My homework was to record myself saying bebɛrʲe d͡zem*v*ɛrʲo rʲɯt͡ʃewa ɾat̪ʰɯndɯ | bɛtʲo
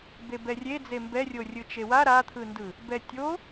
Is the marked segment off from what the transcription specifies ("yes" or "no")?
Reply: yes